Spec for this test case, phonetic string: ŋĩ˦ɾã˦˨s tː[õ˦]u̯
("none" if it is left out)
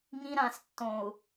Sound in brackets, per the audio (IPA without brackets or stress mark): õ˨